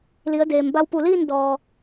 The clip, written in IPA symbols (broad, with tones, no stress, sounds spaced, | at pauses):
l i˩˧ ə̯ d eː˩ m b a˧ w p u˧˩ l iː˥˨ n d ɔː˩